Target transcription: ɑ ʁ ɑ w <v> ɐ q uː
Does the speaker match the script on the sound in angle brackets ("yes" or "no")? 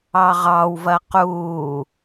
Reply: yes